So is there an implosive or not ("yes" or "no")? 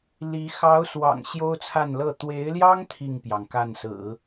no